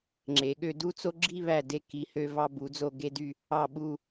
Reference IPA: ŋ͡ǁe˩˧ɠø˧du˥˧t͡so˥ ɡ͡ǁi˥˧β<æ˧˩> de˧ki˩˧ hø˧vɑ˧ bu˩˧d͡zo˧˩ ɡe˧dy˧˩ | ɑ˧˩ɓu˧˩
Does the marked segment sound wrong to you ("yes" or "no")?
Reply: no